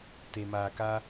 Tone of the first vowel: low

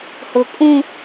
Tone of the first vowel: low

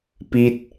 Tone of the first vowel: falling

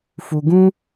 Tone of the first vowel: low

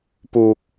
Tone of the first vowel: low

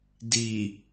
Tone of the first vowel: low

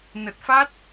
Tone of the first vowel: low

